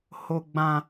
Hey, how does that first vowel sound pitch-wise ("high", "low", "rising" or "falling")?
high